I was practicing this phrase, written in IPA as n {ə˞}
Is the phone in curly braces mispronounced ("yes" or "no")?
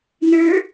no